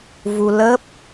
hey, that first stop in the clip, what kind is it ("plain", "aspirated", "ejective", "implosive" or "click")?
plain